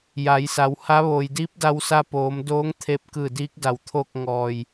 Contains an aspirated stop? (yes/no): yes